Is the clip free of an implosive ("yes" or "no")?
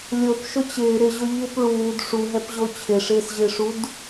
yes